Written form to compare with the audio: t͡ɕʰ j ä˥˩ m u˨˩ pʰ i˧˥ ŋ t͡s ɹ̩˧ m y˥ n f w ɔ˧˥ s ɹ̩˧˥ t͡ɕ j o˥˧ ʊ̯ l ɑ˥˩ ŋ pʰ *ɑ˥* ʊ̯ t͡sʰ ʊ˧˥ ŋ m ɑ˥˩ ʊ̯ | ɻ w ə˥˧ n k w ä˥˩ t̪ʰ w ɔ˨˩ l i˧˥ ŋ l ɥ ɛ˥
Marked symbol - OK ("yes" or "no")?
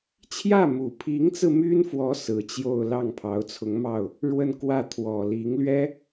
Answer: no